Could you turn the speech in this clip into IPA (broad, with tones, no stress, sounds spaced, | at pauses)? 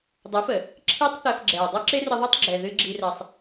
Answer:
dˤ ə˨˦ f ə˨ | ǁʰ i˦ tˤ θ ɛ˧ f ɡ͡ǁ ɛː˨ dˤ əː˦ ǁ e˦ r ə˧ ðˤ əː˦ tˤ ɡ͡ǁ ɛ˨ ð ɨ˧ ɡ͡ǁ i˧ r ɛ˧ sˤ